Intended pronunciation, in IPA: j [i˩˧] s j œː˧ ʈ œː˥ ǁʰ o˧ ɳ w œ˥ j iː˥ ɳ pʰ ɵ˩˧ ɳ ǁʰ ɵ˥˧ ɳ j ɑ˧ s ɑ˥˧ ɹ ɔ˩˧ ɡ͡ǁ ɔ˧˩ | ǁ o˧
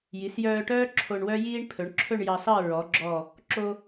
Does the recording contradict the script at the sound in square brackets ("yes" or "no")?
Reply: no